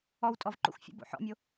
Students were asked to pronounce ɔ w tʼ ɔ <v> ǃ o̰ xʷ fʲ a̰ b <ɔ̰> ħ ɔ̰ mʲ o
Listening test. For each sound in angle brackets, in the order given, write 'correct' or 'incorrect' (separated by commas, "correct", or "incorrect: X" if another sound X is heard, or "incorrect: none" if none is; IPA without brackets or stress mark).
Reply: correct, incorrect: o̰